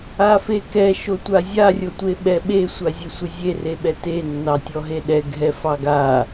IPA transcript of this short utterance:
a f e k ɛ ʃ o tʷ a zʲ a rʲ o tʷ e ɓ ɛ ɓ e sʷ a zʲ e sʷ ə zʲ e r e ɓ ɛ t e nː ɑ tʲ ɔ ɦ e ɗ ɛ ɡʱ ɛ f ɑ ɡ a

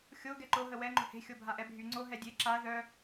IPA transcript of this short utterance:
xʲ o ɡ ɛ ǃ o ɦ ə w ɛ ŋ͡ǃ o̤ h e̤ xʲ o bʱ a ʔ ɛ bʱ y ŋ͡ǀ o ɦ ɛ dʲ e ǁ a ð œ

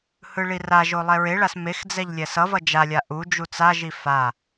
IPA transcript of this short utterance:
h ɯ ɭ i r a ʒ o lˠ ɛ ɹ e ɭ a s m e x d͡z ɛ ʎ lʲ ɛ s ʌ v ʌ d͡ʒ a lʲ a ʔ u d͡ʒ u t͡s a ʒ i f a

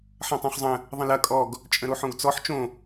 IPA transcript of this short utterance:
ħ ɐ̃ tˤ õ χ zˤ ə̃ | ðˤ ə̃ l ɐ kʼ ɔ ɡ | t͡ʃʼ ə̃ ɾ o ħ õ ɡ t͡s ɔ ħ t͡ʃ õ

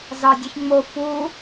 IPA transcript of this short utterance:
z ɑ dʲ ɘ ç ŋ͡m o f u

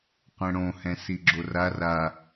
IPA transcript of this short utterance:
qʷ ɛ̃ ɽ õ h ɛ̃ s i ɡ͡ǁ o r a r a

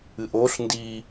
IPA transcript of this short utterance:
ɨ ʔ o ɬ n d i

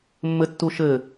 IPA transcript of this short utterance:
mː ɘ tː u ʃ ɘ

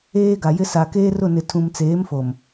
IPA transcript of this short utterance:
eː˦ ɡ a˨ j ɪ˦ s a˨ k eː˦ r ʊ˦˨ n ɪ˨ tʰ ũ˨ m t͡s eː˨˦ m f o˨ m

